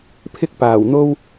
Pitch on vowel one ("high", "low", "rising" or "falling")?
high